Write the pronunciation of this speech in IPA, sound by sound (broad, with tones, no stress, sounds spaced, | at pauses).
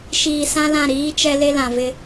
ʃ iː˨ s ã˦ l ã˦˨ ɾ iː˦ t͡ʃ ɛ˦ l e˦ l ã˨ v ɪ˦